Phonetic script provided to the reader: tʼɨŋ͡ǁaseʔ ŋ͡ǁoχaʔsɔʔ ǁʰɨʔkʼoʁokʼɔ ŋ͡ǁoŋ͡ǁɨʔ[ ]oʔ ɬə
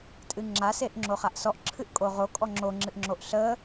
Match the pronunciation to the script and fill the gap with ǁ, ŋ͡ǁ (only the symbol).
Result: ŋ͡ǁ